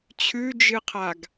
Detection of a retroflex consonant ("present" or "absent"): absent